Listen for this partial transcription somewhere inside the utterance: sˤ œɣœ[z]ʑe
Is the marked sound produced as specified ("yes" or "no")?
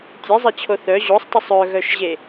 no